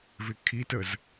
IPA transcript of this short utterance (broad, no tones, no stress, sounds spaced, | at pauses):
v ɪ kʰ i t ə z